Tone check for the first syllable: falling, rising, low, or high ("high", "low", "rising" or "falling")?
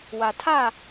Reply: low